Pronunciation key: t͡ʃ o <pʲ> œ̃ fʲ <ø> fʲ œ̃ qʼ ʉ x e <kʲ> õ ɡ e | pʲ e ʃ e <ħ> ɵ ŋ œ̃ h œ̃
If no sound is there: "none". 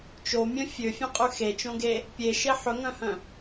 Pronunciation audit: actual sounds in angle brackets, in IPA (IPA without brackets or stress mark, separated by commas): mʲ, ø, t͡ʃ, ħ